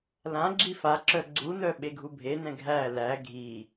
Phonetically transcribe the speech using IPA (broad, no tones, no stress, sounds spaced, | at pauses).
l ã ɡ͡ǁ i f a ǁ œ ɡ͡ǀ u n œ ɓ e ɡʱ u bʱ e n ɛ̃ ɡʱ æ l æ ɡʱ i